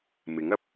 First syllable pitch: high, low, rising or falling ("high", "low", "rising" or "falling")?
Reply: rising